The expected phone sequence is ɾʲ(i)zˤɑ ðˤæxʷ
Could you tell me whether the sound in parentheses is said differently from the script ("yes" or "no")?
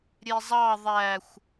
yes